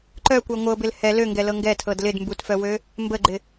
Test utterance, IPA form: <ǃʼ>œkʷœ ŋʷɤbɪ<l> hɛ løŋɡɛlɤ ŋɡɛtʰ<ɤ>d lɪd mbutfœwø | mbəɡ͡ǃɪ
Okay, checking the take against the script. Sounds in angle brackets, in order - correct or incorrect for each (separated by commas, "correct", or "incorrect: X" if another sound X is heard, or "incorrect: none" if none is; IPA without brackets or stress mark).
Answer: incorrect: ǃ, correct, correct